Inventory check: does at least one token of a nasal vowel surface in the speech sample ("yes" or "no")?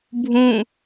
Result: yes